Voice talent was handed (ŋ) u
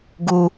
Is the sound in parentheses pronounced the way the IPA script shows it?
no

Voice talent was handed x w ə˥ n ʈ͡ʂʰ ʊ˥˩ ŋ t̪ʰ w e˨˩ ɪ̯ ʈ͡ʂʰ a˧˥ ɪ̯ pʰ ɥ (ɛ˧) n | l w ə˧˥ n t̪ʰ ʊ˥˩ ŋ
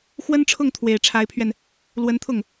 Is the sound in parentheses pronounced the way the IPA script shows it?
yes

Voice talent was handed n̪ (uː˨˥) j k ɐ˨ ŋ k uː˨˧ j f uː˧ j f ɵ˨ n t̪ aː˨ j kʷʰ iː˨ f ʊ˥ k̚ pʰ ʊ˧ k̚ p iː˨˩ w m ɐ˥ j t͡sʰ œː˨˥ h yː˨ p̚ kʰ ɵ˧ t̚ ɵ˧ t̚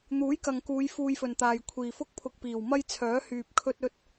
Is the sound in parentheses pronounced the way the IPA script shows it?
yes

